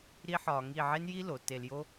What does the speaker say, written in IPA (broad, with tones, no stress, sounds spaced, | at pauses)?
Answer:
ɾ i˥ ħ ɒː˧ ŋ i˥˧ ʕ e˥ n j i˥ l o˩˧ t e˧ l j o˥